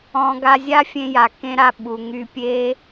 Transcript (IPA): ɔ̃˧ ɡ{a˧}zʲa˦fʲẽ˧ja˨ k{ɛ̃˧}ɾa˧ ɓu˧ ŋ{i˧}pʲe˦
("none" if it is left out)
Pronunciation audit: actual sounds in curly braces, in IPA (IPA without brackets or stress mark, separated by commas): a˧, ẽ˧, y˧